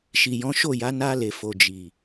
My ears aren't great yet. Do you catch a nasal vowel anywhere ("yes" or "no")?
yes